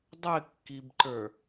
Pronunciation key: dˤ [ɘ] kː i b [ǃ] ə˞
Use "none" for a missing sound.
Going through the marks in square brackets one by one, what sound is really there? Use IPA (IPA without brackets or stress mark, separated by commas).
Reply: ɘ, ǃ